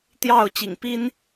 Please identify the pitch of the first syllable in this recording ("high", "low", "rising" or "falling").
falling